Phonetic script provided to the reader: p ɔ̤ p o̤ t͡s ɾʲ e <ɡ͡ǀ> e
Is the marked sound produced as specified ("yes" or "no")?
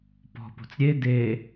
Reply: no